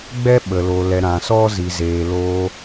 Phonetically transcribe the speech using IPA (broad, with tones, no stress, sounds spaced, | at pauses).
ɡ͡b ɛ˦ ɓ ə˨ l o˨ l ɛ˨ ɾ ã˨ s ɔ˦ z i˨ z eː˨ l oː˧